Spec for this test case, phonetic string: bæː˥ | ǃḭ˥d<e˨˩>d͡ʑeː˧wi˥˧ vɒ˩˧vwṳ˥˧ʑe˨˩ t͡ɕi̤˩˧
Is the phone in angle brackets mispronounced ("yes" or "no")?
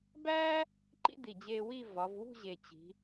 yes